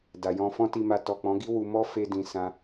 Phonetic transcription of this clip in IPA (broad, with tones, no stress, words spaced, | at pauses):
da˨jɔ̃˧ fɔ̃˦ti˧ma˧ tɔ˨k͡pɔ̃˨˦ɡi˦ wu˧mɔ˦ fe˧dĩ˨ sã˧